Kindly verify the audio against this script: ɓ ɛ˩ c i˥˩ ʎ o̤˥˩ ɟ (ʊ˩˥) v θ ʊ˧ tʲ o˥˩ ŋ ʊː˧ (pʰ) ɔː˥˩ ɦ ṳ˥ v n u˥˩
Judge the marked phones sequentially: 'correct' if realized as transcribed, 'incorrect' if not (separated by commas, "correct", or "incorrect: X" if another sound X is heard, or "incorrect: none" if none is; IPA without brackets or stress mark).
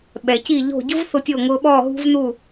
incorrect: ʊ˥, incorrect: ɓ